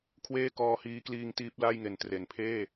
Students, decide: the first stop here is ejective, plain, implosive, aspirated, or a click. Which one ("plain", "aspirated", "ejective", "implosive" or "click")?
aspirated